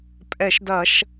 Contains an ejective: yes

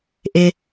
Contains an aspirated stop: no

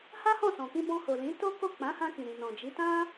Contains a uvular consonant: no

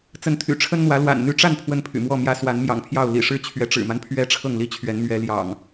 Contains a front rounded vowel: yes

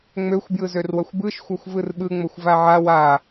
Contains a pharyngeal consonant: yes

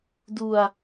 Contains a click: no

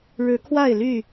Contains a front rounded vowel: yes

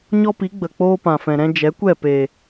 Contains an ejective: no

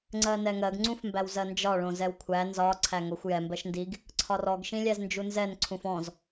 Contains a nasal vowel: yes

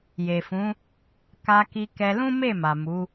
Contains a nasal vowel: yes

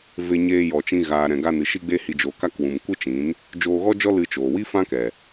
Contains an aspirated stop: no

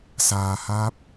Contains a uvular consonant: no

